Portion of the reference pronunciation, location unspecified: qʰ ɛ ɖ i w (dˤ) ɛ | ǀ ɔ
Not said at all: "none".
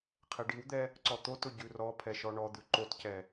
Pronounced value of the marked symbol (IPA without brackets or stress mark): d̪